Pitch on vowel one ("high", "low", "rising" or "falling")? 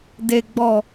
low